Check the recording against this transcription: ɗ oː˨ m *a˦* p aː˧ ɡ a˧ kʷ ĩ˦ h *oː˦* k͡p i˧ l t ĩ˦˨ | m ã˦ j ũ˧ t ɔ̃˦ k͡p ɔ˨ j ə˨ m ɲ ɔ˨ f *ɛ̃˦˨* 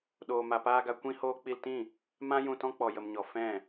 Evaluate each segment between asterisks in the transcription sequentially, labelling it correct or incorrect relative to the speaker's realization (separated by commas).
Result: incorrect, correct, correct